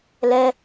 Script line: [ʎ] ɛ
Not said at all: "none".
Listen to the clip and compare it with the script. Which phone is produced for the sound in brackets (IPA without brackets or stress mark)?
l